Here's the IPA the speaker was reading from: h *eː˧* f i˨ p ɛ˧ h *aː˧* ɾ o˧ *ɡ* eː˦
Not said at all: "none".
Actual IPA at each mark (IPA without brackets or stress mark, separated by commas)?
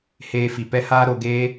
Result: eː˧, aː˧, ɡ